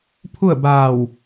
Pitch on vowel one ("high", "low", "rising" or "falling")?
falling